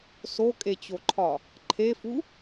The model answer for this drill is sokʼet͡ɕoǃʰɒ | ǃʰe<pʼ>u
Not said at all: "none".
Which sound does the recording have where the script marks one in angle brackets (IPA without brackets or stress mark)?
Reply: f